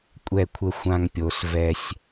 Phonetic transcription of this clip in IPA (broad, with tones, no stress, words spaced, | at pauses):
kʷʼɛ˦˨kʷʰə˦ xʷã˦ŋpʲo˨˦s vɛ˦sʲ